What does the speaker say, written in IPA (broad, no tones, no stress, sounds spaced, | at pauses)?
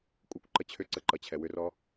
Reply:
kʷʼ ə kʷ ǃ ə t͡ɕʰ ʏ ǀ ə ǃ ʌ t͡ɕʰ ɛ w ʏ r ɔ